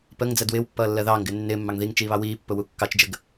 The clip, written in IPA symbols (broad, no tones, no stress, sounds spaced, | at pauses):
p ə ŋ d͡z ɜ d w ɪː w pː ʌː lː ɜ ð ɑː ŋ ɡ ɪː nː ɪː mː ɑ ŋ ð i ŋ t͡ʃ iː β ɑ w iː pː ʊ w u kː ɑ t͡ʃ d͡ʒ ə ɡ